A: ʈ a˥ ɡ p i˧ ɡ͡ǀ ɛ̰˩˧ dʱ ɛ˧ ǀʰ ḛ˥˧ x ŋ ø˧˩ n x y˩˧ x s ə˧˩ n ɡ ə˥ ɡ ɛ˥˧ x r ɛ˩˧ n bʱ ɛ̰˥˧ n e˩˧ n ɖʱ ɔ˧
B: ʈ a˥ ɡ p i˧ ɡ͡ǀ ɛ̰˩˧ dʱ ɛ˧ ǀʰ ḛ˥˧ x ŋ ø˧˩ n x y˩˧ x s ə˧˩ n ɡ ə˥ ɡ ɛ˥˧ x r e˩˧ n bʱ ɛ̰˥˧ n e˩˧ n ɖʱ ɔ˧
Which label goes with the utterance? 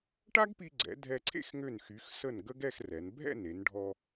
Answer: A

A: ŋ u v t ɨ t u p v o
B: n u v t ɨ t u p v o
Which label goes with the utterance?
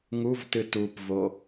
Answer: A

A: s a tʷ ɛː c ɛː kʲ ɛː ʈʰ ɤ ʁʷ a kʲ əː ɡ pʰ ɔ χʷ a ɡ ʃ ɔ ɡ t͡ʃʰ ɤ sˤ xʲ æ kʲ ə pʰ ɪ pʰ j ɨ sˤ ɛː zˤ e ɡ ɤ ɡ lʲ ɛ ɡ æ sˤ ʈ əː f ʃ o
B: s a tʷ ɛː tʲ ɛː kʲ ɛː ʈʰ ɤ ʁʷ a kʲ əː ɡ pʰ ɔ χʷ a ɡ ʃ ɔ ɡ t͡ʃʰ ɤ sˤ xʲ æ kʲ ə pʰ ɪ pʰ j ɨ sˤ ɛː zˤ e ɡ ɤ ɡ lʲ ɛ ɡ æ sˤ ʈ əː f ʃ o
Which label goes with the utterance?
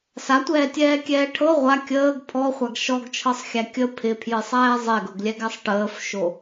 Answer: B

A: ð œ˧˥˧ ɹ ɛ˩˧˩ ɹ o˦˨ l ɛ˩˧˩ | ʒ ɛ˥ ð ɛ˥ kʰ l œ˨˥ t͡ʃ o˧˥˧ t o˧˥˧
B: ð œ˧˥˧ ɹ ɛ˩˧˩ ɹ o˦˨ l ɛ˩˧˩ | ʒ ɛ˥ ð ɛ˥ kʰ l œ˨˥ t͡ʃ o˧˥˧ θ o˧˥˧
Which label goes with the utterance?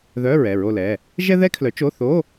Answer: B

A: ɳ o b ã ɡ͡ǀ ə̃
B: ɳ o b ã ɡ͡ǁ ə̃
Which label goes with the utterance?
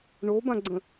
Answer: A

